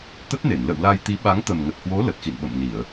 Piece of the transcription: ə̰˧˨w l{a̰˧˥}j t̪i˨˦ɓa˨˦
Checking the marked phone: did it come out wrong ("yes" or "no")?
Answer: yes